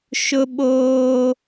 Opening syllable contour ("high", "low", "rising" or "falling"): high